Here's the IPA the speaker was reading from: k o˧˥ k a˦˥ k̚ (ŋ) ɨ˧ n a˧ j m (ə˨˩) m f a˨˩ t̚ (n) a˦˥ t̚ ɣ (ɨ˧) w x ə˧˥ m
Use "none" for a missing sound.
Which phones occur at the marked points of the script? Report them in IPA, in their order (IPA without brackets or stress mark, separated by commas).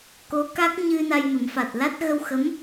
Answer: ɲ, ə˨˩˦, l, ə˧